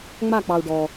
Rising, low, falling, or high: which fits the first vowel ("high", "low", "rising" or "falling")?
falling